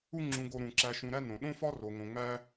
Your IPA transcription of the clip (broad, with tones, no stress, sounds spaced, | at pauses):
u˦ ŋ͡ǁ ũ˨ ɡ o˨ ɾ ũ˩ ǁ æ˨ ʃ ũ˨ ɾ æ˥ n õ˩ ɗ õ˥ f ɒ˥ r o˩ ŋ õ˩ ŋ͡m æ˦